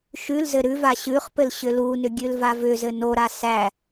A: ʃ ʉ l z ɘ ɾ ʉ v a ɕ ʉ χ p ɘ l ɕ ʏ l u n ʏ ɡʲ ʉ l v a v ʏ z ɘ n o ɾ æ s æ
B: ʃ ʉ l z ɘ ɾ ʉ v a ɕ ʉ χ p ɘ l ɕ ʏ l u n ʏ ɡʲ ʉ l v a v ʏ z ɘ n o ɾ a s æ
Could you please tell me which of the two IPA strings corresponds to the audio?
B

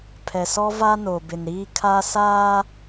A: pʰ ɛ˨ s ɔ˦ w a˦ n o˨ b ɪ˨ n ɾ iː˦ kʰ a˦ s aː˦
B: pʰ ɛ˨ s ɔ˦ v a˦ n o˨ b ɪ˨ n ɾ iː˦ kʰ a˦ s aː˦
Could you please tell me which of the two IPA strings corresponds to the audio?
B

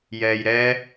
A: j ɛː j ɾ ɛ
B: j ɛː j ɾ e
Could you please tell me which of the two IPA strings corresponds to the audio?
A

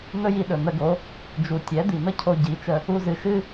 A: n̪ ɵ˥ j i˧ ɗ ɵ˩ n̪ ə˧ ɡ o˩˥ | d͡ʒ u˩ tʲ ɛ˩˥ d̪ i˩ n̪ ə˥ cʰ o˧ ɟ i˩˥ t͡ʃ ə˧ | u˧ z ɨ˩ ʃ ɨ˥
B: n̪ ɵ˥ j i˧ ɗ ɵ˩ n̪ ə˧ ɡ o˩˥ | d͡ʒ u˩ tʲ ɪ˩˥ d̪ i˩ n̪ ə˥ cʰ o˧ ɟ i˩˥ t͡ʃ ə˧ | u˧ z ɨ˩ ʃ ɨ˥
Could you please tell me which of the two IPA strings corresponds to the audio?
A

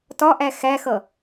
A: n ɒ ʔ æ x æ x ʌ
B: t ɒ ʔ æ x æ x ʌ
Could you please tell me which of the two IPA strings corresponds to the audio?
B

